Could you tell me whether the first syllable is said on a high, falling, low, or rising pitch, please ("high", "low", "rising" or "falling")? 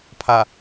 low